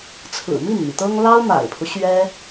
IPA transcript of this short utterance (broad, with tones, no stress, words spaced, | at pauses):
t͡sʰɹ̩˨˩mi˥˩nmi˩t̪ɤ˥ŋ lɑ˥ʊ̯ma̰˨˩ɪ̯pʰu˦ ɕɥɛ˥